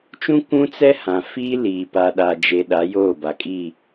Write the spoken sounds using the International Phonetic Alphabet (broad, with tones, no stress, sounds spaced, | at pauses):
t͡ʃ ũ˦ kʷ ũ˦ t͡s ɛ˦ h ã˨ f iː˦ l iː˨ p a˨ ɗ a˨ d͡ʒ e˨ ɗ a˨˦ j oː˦˨ b a˨ kʼ iː˦˨